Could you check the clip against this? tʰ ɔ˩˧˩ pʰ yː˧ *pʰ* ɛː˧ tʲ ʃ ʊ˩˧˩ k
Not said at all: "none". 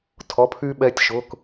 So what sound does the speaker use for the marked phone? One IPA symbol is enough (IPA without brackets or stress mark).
ɓ